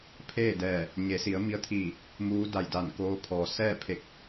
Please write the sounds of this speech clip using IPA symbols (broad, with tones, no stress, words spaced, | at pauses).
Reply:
pʰeː˥˨dɛː˧˩ | ɲe˩˧si˩˧ə̯ mi˧ə̯t̪ʰiː˧˩ | muː˧˥da˧˩jda˧˩nkoː˧ pʰɔː˩sɛː˥˨pʰe˧˩k̚